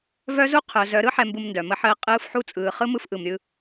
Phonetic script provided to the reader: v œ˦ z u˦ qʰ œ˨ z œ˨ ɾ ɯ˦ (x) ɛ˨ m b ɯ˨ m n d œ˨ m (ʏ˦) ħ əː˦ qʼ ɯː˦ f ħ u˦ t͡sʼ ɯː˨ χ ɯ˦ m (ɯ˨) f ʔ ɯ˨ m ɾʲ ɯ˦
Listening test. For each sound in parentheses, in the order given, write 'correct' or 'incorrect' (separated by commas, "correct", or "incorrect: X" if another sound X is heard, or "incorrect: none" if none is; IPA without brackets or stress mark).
incorrect: ħ, incorrect: ə˦, incorrect: ɯ˦